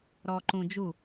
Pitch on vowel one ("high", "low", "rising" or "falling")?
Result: low